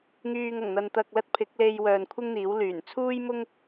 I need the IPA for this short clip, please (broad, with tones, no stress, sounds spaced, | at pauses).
ŋ yː˨ ŋ ɐ˨˩ ŋ n̪ ɐ˨ n t̪ ɐ˨ k̚ l ɐ˥ t̚ pʰ ɪ˨˥ k̚ l e˧ j w œː˨ n kʷʰ ɪ˥ ŋ n̪ iː˨˥ w l yː˨˩ n t͡sʰ uː˥ j m ʊ˥ ŋ